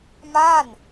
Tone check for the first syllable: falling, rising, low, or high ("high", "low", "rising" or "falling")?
falling